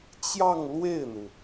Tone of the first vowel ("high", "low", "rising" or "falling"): falling